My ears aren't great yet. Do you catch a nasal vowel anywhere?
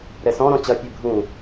yes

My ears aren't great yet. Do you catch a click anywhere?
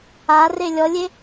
no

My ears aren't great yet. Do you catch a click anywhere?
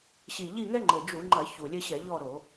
yes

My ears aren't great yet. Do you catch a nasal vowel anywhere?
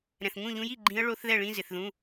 yes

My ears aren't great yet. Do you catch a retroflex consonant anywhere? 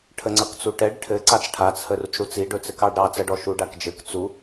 yes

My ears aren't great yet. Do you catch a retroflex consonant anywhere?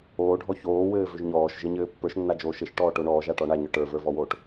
yes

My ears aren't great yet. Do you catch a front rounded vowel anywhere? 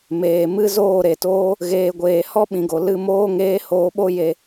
no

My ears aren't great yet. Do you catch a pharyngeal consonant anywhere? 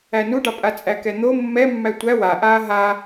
no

